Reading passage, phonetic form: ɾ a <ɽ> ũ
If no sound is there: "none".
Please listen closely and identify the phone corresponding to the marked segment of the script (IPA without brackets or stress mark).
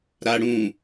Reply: ɽ